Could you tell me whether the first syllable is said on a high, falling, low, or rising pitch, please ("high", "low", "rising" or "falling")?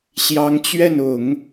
rising